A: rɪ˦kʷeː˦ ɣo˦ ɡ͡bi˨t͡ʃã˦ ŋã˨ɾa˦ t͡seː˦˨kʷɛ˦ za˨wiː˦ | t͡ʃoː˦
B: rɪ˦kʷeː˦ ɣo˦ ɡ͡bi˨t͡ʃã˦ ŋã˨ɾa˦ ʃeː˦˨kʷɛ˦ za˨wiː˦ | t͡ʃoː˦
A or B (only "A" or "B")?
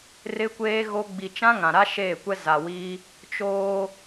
B